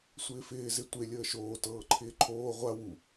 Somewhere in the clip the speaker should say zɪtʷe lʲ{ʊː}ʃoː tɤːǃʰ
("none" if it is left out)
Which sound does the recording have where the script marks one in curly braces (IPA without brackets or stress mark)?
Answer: əː